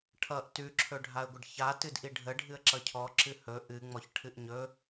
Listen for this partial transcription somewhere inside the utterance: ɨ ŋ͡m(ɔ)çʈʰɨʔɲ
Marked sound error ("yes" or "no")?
no